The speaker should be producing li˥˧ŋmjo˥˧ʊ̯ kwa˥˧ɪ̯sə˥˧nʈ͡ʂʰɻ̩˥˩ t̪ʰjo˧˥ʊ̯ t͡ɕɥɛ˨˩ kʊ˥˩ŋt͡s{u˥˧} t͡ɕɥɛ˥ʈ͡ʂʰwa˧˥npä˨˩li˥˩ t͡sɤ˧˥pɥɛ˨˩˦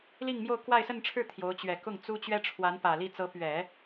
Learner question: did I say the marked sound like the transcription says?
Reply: no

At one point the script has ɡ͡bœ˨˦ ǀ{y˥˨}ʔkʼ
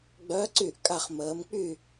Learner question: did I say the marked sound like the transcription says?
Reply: yes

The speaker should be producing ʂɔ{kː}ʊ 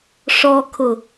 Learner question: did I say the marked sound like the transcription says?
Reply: no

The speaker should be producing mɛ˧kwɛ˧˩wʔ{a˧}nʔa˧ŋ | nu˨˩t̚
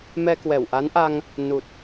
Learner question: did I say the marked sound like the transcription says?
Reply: no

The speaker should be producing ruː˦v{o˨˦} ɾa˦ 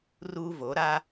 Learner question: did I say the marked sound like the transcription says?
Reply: yes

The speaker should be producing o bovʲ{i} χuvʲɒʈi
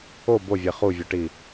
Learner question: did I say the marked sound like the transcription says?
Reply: no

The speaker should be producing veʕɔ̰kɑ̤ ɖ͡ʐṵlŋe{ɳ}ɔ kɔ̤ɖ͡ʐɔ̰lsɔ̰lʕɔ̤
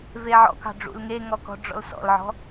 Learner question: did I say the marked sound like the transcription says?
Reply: no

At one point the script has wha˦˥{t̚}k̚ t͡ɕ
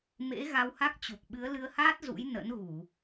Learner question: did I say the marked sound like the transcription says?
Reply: no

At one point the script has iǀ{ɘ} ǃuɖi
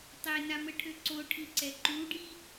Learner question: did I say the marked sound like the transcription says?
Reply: no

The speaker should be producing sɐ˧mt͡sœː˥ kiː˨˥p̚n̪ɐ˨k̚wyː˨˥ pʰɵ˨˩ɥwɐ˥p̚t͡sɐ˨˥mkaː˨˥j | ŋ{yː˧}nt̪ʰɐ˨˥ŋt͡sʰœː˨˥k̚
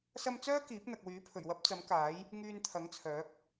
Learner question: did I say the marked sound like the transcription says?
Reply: yes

